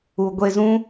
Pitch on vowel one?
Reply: low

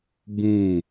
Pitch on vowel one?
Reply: falling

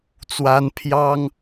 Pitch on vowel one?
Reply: high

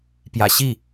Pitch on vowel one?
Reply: low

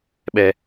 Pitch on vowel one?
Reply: high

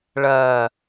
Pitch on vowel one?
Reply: low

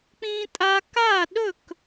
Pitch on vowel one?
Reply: high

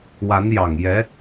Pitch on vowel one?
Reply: rising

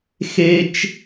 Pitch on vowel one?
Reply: high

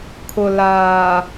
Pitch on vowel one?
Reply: low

